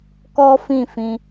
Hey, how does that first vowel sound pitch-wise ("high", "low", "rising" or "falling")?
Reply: high